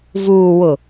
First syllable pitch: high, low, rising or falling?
low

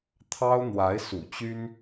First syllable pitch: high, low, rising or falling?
high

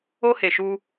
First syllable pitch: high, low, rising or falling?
high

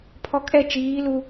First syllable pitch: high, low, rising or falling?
low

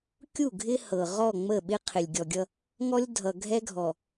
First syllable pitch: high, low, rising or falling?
falling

